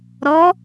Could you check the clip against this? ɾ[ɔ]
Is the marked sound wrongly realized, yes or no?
no